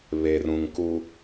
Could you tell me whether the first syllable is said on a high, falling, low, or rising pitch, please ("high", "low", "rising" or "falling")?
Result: low